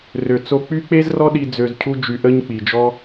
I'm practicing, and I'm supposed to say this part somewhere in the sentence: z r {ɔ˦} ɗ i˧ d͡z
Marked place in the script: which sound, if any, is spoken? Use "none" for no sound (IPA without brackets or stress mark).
ɔ˦